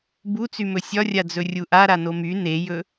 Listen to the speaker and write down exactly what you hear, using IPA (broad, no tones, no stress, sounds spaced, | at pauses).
b u t͡s y m ɵ sʲ ɒ rʲ a d͡z ɵ rʲ u ʔ a ɾ a n o m y n e j ɵ